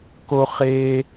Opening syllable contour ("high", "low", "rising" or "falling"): high